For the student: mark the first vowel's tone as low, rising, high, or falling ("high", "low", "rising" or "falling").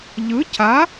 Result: rising